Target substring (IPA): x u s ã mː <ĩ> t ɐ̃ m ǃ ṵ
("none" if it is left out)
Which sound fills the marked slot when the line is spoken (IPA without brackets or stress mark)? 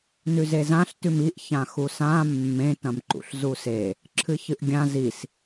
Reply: ẽ